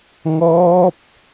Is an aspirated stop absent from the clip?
yes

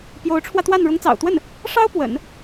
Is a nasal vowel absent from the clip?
yes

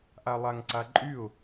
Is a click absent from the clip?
no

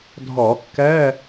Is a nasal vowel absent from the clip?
yes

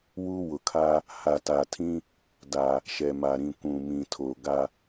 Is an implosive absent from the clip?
yes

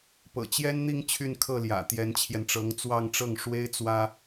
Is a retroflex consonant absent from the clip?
no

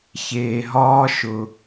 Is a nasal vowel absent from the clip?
yes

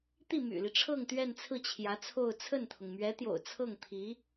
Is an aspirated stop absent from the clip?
no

